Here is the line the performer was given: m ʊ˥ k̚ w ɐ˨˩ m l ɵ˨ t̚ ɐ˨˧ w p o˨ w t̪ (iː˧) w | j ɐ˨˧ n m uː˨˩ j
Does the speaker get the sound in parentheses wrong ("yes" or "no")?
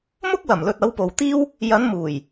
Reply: yes